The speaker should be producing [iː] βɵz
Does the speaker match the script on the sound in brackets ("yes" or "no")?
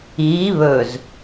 yes